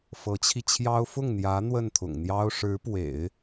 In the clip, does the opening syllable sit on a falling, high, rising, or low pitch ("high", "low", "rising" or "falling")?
rising